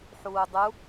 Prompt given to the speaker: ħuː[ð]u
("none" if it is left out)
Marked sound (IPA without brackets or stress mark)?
dˤ